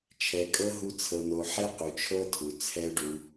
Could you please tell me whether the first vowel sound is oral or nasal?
oral